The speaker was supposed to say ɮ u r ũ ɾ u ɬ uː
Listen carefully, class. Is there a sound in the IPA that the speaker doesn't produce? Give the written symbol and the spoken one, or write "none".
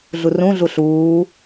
ɾ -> ɮ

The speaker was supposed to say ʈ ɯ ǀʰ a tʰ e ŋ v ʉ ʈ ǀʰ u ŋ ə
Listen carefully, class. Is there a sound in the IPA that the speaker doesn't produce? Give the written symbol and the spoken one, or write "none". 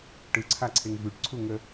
tʰ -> ǀʰ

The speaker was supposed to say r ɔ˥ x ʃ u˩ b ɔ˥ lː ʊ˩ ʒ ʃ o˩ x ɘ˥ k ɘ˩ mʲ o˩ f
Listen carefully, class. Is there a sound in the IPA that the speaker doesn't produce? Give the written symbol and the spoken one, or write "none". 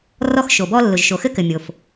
u˩ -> o˩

